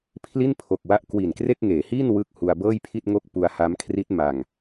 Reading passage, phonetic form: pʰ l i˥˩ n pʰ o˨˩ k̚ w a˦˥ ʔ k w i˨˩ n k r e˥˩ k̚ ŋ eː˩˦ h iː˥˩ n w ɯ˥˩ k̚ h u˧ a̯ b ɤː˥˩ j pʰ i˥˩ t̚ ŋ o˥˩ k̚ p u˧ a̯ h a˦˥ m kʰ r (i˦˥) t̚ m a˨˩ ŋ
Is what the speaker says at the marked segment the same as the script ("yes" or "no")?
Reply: yes